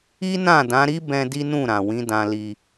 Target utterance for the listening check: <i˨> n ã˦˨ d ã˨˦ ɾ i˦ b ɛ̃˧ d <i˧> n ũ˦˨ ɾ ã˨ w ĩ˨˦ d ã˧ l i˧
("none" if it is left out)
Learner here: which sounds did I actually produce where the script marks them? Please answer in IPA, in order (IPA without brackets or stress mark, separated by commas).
i˦, i˦